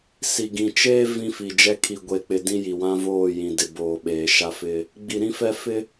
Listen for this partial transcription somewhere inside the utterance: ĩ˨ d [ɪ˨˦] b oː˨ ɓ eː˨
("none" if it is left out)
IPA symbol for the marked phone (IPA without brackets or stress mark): ɪ˨